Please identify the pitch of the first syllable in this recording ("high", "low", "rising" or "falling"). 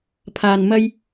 low